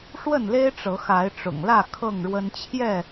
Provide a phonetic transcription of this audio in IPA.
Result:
ʂ w ə˥˨ n l e˦ ɪ̯ ʈ͡ʂ ɤ˨˦ x a˨˦ ɪ̯ ʈ͡ʂ ʊ̰˨˩ ŋ l ä˥˨ kʰ ɤ˥˨ ŋ ɻ w ə˦ n t͡ɕʰ j ɛ˥˨

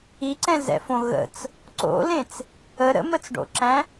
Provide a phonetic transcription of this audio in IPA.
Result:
i ǀ ɛ̃ z ɛ̰ f õ ɣ ə̰ t͡s | ǀ o̰ l ẽ t͡s | ə ɾ ə̰ m ə t͡s ɖ o̰ ǁ æ̃

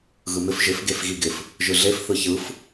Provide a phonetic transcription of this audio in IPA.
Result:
ɣ ɯ m ɪ f ʒ ɪ f ɡ e f ɣ i ɡ ɪ f | ʒ ɯ ɮ e f θ ɯ ç ɯ f

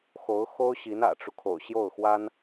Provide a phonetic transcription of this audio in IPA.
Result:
x o˧˥ ʊ̯ x o˥ ʊ̯ ɕ i˧˥ n ä̰˨˩ ʈ͡ʂ u˦ kʰ o̰˨˩ ʊ̯ ɕ j o˥˩ ʊ̯ x w a˥ n

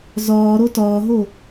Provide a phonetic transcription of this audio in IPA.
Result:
z ɒː ɾ o t ɒː ɦ o

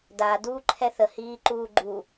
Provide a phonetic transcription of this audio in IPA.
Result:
d a d uː ǃʰ ɛ θ ə h iː ǃ uː ɡ͡ǃ u

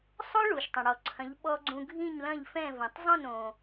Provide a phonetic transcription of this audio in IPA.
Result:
sˤ o˥ ɭ u˩ ʃ tˤ ɐ̃˩ ɽ ɔ˩ ǀʰ ɐ̃˩˥ ʎ ɓ ɔ˧ ɡ͡ǀ ũ˧ ɡʱ ĩ˥˩ ɲ l ɐ̃˥˩ ʎ f ɛ̃˥˩ v ɐ̃˩ tˤ zˤ õ˥˩ n õ˩

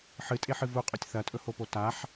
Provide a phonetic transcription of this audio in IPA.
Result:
ħ ɨ tʼ e ħ ɨ v u qʼ o tʲ θ ɐ tʼ ɵ h o p o t a ħ

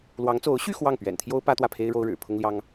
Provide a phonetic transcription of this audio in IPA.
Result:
l w ɑ˧˥ ŋ t͡s o˧˥ ʊ̯ ɕ y˥˧ x w ɑ˥˩ ŋ p ɥ ɛ̰˨˩ n t̪ʰ j o˥ ʊ̯ p ä˥ t̪ w ä˥˩ pʰ e˥ ɪ̯ ɻ o˥ ʊ̯ ɻ ɻ̩˨˩ pʰ ʊ˥ ŋ l j ɑ˥ ŋ

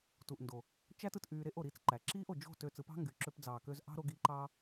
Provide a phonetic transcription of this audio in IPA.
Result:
t u˨ ʔ n d o˨ | t͡ʃ æ˦ t ɯ˧ t ʔ yː˧ ɾ e˦˨ ʔ o˨ ɾ iː˨ t͡s ǃ æ˨ ǁ iː˦ ʔ o˨ d͡ʒ o̤˦˨ t ø˧ t͡s ɯ˨˦ p ɑ̤˦ ŋ ɡ y˨ ǁ ø˧ p d͡z ɑː˨ k ø˧ z ʔ ɑ̤˦ ɾ o˧ ɡ i˨˦ ǃ ɑː˧

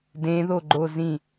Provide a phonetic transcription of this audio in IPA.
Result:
d ẽ ð o ɡ͡ǃ o z ĩ

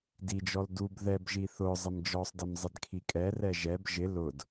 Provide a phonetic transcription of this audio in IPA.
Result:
d i d͡ʒ ɔ l d u b ð ɛ b ʒ i θ ʊ zˤ ɪ m d͡ʒ ɔ sˤ d ɪ m zˤ ɪ d kʰ i kʼ ɛ r ɛ ʒ ɛ b ʒ ɪ l ʊ d

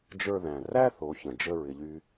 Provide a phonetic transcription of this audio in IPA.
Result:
d͡ʒ ə˞˧ ð æ̃˩ r æ˥ θ o˩˧ ç ə̃˩ d͡ʒ ə˧ ɹ ɪ˩ ʎ y˧

